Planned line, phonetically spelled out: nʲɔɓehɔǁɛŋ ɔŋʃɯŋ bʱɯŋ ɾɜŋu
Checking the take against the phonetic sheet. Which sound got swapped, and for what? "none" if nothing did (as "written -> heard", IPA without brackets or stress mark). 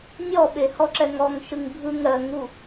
none